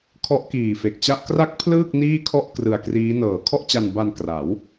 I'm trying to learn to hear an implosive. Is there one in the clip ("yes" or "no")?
no